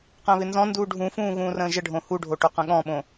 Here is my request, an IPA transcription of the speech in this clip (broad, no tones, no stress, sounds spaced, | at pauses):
q ə̃ː β ɪ n z ɔ̃ n d uː ɖʱ ũ f ũː ɣ ũː r ə̃ː ʒ ə ɖʱ õ h u ɖʱ o ʈ o q ə̃ ɠ ɔ̃ ɓ õ